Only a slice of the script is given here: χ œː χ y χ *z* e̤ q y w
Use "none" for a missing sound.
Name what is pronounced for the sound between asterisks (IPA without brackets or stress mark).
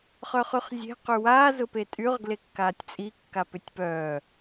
zʲ